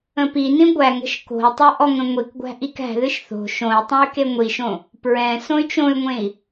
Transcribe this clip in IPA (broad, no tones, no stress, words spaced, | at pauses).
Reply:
ə̃pinĩ ɡʷæŋə̤ʃ ko̤i̯tˤɤ ʔɔŋə̃ŋʷikɡʷæ̤ ʔikæ̤ðɨʃ θo̤ ʃõi̯ tˤõy̯keŋʷiʃõ | pɹɛ̃ sõy̯t͡ʃõy̯ŋʷẽi̯